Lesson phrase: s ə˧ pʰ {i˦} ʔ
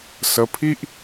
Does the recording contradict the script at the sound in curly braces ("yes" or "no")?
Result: no